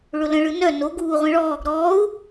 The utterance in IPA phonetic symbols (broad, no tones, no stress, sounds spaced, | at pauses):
ɭ ʊ l ə̃ ɭ ɯ n œ n o ɡ uː ʁʷ ẽ ɭ ɔː ɡ ɾ ɔː u̯